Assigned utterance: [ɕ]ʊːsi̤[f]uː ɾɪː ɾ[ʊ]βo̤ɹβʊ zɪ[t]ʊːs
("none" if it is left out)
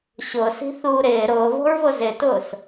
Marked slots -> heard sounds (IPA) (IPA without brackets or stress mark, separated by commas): ɕ, θ, ʊː, t